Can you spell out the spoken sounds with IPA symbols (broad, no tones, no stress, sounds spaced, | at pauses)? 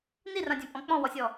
n i r ã dʲ ã pʼ ɔ̃ k͡p ɔ̃ w ɔ sʲ ɔ